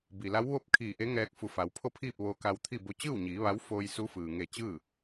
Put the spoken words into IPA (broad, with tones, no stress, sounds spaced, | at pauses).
b i˩ l a˧˥ w ʋ o˧˥ p̚ kʰ iː˧˩ ʔ e˧˥ ŋ ɛː˧ k̚ f u˩˧ f a˩˧ w pʰ o˥˨ pʰ iː˥˨ p̚ ʋ oː˧ k a˧ w t̪ʰ i˥˨ b o˧˥ t͡ɕ ɯː˥˨ w ɲ iː˩˧ ʋ a˧˥ w f oː˧ j s u˧˥ f ɯː˩ ŋ e˧˩ t͡ɕ ɯː˥˨